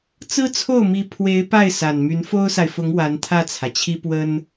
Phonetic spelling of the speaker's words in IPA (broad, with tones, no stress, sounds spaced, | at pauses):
t͡s ɹ̩˥ t͡sʰ o˥˩ ʊ̯ m i˧˥ pʰ w e˧˥ ɪ̯ p a˥˩ ɪ̯ s a˨˩ n m y˧˥ n f o˥ ʊ̯ s a˨ ɪ̯ f ʊ˧˥ ŋ w a˧˥ n t̪ʰ ä˥˩ t͡sʰ ä˩ t͡ɕʰ i˥ p w ə˥ n